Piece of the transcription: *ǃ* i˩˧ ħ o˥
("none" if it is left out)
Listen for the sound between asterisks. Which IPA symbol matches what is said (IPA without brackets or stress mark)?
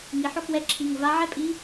ŋ